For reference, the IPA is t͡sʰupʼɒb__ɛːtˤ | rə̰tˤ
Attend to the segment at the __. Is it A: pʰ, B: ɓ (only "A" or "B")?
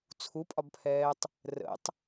A